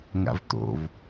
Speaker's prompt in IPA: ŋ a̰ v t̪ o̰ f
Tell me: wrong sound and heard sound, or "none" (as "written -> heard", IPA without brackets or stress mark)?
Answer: f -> v